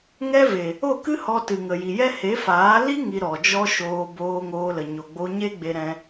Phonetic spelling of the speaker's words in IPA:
ŋ ɛ˦ v e˨ | o˦˨ k ɨ˦ h ɔ˧ t ɨ˨ ŋ ə˨ j i˨ j ɛ˦ h e˨˦ f aː˨˦ l i˦ ŋ i˧ ɾ ɔ˨ d͡ʒ ɔ˦ ʃ oː˧ b oː˧ ŋ oː˧ l ə˨ ɲ o˨ ɡ͡b o˧ ɲ e˦ ɡ͡b e˧ ɾ ɛ̃˧

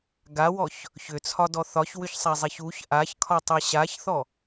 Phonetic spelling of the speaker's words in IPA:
ɡ a w ɔ ç | ç ʏ t͡sʰ ɒ d ɔ θ ɒ ç w ʏ ç sˤ a zˤ e ç u ç ʔ a ç kʰ ɒ tˤ e ɕ a ç θ ɔ

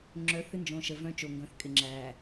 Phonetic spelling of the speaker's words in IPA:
ŋ͡ǁ œ˨˦ θ ɪ˦ n d͡ʒ õ˨ ʃ ə˨ v œ̃˦ t͡ʃ o˨ ŋ ɡ œ̃˨ θ kʼ ɪ˨ ŋ͡ǁ æ˨

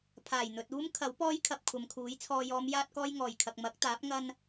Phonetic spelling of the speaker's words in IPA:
pʰ aː˨˩ j n̪ ɵ˨ t̚ uː˥ m kʰ ɐ˨˥ w p ɔː˥ j kʰ ɐ˧ p̚ kʷʰ ɐ˨ m kʰ uː˨˥ j t͡sʰ ɔː˨ j ɔː˨˧ m j aː˥ t̚ k ɔː˥ j ŋ ɔː˨˩ j kʰ ɐ˨ k̚ m ɐ˨˥ k̚ t̪ aː˨˥ p̚ ŋ ɐ˧ n

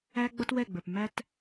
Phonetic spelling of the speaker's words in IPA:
æ˦ ɡ͡b ʌ˦ t w ɛ˦˨ ɡ͡b ə˞˨ p m æ˦ t

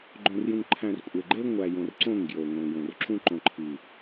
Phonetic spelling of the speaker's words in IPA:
ɡ͡ǃ õ˨ r j ũ˨ ŋ ǃʰ æ̃˨ r kʷʼ e˨ ɡ͡ǃ e˦ ŋʷ æ˨ j õ˨ r ǀ õ˦˨ ŋ ɡ j o˨ ŋʷ ẽ˨ j õ˨ r ǁ ũ˦ ǃ õ˨ ǃʰ i˨

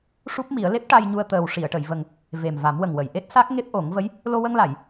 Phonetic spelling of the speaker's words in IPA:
ʂ u˦˥ p̚ m i˨˩˦ ə̯ l e˦˥ p̚ ʈ a˧ j ɲ u˧ ə̯ t̪ əː˨˩ w ʂ i˨˩˨ ə̯ ʈ ə˨˩˨ j v ə˨˩ ŋ | v e˨˩ m v a˨˩˦ m w ə˨˩ ŋ w ə˨˩˨ j ʔ e˦˥ t̚ s a˦˥ k̚ ŋ e˦˥ p̚ ʔ o˨˩˦ ŋ v ə˧˥ j | l o˧ w ə˧ ŋ l a˨˩˨ j

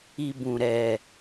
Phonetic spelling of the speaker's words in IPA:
i˧ b ũ˨ ɾ ɛ˨

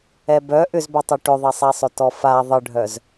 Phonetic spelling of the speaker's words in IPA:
ɛ b œ ʔ ʏ z b œ tˤ ɛ ʈ ʏ ðˤ ɐ sˤ ɛ sˤ ʏ t ɔ f a ðˤ ə ɖʱ œ z

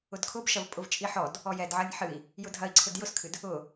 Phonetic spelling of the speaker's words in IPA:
ʊ d kʰ ʊ b ʃ ɐ v pʼ ʊ v t͡ʃʼ i ħ ɔ d | ɔ j ɛ d ʕ ɐ nʲ ħ ɨ i̯ | j ʊ dʱ ɐ i̯ ǀʰ ʊ d j ʊ s kʰ ɨ d | ʊ

